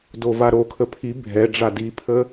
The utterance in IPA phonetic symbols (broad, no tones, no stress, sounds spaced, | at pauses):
d o v a ɾ o kʰ ə pʰ i bʱ ɛ ɖ͡ʐ a d i pʰ ə